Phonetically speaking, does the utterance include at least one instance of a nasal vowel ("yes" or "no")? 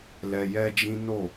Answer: yes